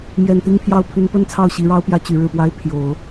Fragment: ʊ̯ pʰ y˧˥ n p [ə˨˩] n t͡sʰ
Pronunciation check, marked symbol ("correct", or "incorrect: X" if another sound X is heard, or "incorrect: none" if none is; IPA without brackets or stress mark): incorrect: ə˥